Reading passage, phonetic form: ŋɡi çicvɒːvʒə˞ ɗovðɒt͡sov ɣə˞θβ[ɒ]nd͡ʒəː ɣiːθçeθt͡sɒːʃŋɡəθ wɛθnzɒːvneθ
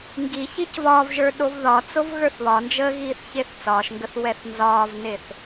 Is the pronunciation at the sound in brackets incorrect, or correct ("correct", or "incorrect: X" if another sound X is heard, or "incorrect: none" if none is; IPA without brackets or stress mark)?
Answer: correct